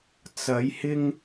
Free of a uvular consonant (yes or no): yes